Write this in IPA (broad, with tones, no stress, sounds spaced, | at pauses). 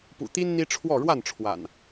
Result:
p ṵ˨˩ t̪ i˦ n n̪ i˦ ʈ͡ʂʰ w ɔ˥˨ ɻ w a˥˨ n ʈ͡ʂʰ w a̰˨˩ n